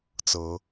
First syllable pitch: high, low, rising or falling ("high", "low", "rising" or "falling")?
rising